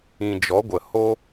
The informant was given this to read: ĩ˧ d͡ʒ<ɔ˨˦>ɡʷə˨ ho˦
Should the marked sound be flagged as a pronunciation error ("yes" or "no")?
no